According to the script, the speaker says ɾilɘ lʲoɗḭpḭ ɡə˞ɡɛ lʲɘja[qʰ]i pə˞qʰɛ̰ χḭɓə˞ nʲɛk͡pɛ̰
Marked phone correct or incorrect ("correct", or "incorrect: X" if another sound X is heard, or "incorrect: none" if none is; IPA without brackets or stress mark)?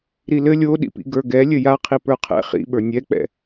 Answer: correct